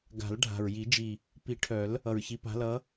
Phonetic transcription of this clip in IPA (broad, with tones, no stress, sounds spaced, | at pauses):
ɡ a̤˨˩˦ l ɖʱ a̤˨˩ ɹ j i˨˩˦ d͡ʒ i˨˩ | p i˨˩˦ ʈʰ œ˨˩˦ l | ʌ˨˩ ɹ ç i˨˦ p a̤˨˦ l ʌ˨˦